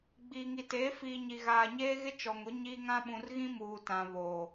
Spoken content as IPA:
ɡ͡b iː˨ ŋ i˨ t eː˨˦ f iː˨ ɲ i˨ ɣ aː˨ ɲ eː˦ ɣ ɪ˦ t͡ʃ ɔ˨ ŋ ʊ˨˦ ɲ iː˦ ŋ ã˦ ɓ ũ˨ r ɣ ĩ˦ m uː˨ t ã˨ β oː˨

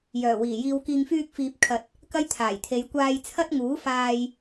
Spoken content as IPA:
j œː˨˩ w iː˨˩ j iː˧ w k iː˨ ŋ f yː˧ k̚ f iː˧ p̚ kʰ ɐ˨ t̚ | k ɐ˥ j t̪ʰ aː˨˩ j t̪ʰ e˨˧ j kʷ aː˧ j t͡sʰ ɐ˥ t̚ ŋ uː˨˥ f aː˧ j

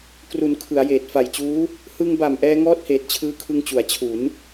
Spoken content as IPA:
k r u˩˦ n kʰ ɯ˩˦ a̯ j eː˨˩ t̚ f a˨˩ j t͡ɕ uː˦˥ | h ɯ˧ ŋ b a˨˩ m ʔ ɛː˧ ŋ ɔː˥˩ t̚ h eː˨˩ t̚ t͡ɕʰ ɯː˦˥ kʰ ɯ˧ ŋ t͡ɕ u˩˦ a̯ t͡ɕʰ u˩˦ n

